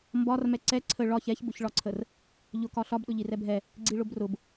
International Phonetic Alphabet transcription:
m b ɒ r m ɛ ǀ ɛ ǀʰ ə ɭ ɒ ç ɛ ç b ʊ ç ɭ ɒ ǀʰ ə r | ʎ ʊ k ɒ ɬ ɒ b ɗ ʊ ʎ i r ɛ bʱ ɛ | ɡ͡ǀ i ɭ ʊ b r ʊ b

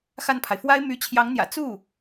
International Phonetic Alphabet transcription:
x a˥˩ n pʰ a˩ ɪ̯ f w a˥ ɪ̯ m y˧˥ t͡ɕʰ j ɑ˧˥ ŋ n̪ j ä̰˨˩ t͡s u˥˩

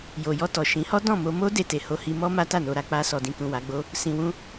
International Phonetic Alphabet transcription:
j o˨ j ɔ˧ t ɔ˨ ʃ ĩ˨˦ h ɔ˦ d ɔ̃˦˨ m o˧ m o˦ d e˦˨ t e˨ h o˧ h i˧ m ɔ˦ m a˦ t a˦˨ n o˧ ɾ a˧ k͡p a˧ s ɔ˨ d ĩ˨ k ũ˨ w a˨˦ ɡ͡b o˦ | s ĩ˧ w ũ˦

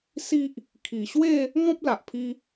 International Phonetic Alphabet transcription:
s i˦ ʔ | kʰ i˨˩ ɕ w e˥˧ | ŋ ɔ̃˦ p̚ l a˨ ʔ pʰ i˧

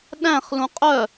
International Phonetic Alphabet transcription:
ɗ æ̃ χ l ũ qʼ œ

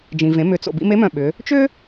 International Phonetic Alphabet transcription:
d͡ʒ ĩ˩ v ẽ˩˧ m ʏ˩˧ t͡s o̰˩ b ḭ˧ m e˧˥ m œ̃˩ ɓ ʏ˩˧ | t͡ʃ ʏː˥

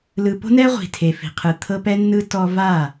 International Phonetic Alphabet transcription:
l ɯ˨ p o̤˦ n ɛ˦ ʁʷ i̤˨ tʰ e˨ f i̤˨ qʰ ɯ˨ t̪ʰ ɤ˦ p ɛ˦ nː ɯ˦ t ɔ˦ v a˦˨

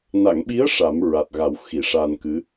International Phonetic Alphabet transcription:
n a˨˩˨ ŋ ɓ i˧˥ ə̯ ʂ a˨˩˦ m ɹ a˨˩ t̚ ɣ a˨˩˦ w x i˨˩˨ ʂ a˧ n k ɨ˧˥

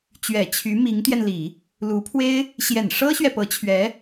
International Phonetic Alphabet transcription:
t͡ɕ ɥ ɛ˨˩ t͡ɕʰ y˧˥ m i˧˥ ŋ t̪ j ɛ˧ n l i˨˩˦ | l u˧˥ pʰ w e˥ ɪ̯ | ɕ j ɛ˨˩ n ʂ ɤ˥ ɕ ɥ ɛ˨ p ɤ˧˥ t͡ɕʰ ɥ ɛ˧˥

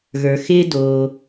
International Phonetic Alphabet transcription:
ɣ ə˞˨ x ɪː˦ d oː˧

